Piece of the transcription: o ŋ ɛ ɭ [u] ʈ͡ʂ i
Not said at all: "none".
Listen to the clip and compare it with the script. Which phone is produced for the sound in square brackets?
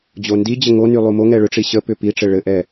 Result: ʏ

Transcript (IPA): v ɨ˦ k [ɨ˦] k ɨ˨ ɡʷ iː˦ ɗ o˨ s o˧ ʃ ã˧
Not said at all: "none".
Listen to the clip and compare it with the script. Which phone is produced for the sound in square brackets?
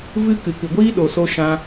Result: ɨ˨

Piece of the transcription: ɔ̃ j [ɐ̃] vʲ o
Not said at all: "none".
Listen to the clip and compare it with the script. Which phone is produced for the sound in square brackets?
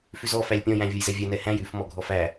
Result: æ̃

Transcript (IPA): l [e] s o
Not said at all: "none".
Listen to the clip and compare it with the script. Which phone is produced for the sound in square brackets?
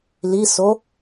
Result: i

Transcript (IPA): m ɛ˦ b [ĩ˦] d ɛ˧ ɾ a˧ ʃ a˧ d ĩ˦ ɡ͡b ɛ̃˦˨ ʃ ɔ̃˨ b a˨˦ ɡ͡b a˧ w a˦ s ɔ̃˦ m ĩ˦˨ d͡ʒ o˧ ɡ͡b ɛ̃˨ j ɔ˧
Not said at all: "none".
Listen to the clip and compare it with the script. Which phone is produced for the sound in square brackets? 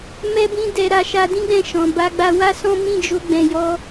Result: ĩ˦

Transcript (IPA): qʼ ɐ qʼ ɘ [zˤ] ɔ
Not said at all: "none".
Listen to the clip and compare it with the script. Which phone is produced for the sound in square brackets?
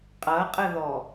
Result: ð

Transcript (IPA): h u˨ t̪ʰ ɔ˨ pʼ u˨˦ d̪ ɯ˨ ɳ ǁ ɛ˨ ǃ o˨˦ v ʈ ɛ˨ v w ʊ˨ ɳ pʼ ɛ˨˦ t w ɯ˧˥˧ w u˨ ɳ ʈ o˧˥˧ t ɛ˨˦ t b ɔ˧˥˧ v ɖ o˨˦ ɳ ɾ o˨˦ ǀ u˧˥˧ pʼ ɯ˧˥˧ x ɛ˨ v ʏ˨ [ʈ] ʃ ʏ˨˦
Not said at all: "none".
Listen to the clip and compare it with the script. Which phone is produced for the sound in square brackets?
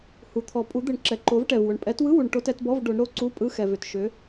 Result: t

